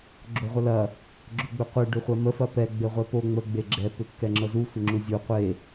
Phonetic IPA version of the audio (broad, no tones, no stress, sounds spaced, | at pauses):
ɡ͡ǁ o ʁʷ ɐ l ɐ | ɡ͡ǁ ʏ ɡ͡b ʏ qʷ e ɖ ʏ χʷ ɐ m ə f ɐ p ɛ ɡ͡b e ʁʷ ɛ p o ŋ͡m ə ɡ͡b e ɡ͡ǁ ɛ p ʏ kː ɛ ŋ͡ǁ ɤ z u sʷ ɘ ŋ͡ǁ u zʲ u qʷ e